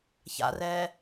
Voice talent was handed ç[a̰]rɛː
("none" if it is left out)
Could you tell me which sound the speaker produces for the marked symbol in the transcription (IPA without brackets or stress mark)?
a̰